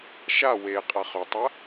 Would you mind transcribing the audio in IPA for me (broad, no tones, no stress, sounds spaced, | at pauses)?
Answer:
ʃ a w e qʼ a χ ʏ tˤ ɐ